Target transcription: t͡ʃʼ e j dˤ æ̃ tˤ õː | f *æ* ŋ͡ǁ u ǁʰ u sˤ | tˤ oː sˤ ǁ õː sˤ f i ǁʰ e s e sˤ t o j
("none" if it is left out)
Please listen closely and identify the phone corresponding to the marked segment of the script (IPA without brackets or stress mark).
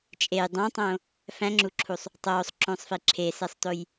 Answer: æ̃